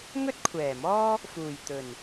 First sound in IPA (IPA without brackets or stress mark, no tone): ŋ